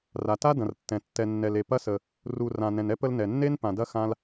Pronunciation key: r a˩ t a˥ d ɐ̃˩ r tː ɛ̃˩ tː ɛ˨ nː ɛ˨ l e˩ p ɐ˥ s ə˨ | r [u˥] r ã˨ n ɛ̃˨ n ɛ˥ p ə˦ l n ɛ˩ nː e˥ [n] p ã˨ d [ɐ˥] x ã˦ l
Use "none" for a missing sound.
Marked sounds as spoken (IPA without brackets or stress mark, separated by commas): u˨, n, ɐ˥